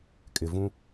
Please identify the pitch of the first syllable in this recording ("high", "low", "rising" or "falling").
low